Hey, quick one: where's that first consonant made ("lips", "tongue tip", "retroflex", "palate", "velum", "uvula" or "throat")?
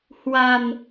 throat